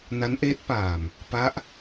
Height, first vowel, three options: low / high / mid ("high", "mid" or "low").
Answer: low